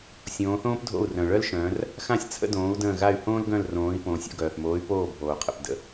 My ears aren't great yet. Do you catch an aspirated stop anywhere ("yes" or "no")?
yes